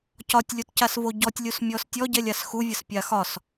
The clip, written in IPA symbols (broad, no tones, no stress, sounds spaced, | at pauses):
c ɒ tʲ lʲ o t c a s v o ɟ ɔ tʲ lʲ u s mʲ ɔ s tʲ ɔ ɟ ɛ lʲ a s x u vʲ ə s pʲ a x ɒ s